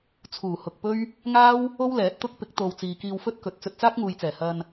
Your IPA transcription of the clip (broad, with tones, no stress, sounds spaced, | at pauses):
t͡sʰ uː˨˩ h ʊ˨ k̚ p ɵ˥ ɥ | ŋ aː˥ w | o˥ w l ɛː˨˥ t̚ t̪ ʊ˥ k̚ p ɪ˨˥ k̚ t̪ o˨ w t͡s iː˨ k iː˧ w f ɵ˥ t̚ k ɵ˨ t̚ t͡s ɵ˧ t̚ t͡s aː˥ k̚ ŋ uː˨ j t͡s ɛː˨˩ h ɐ˧ n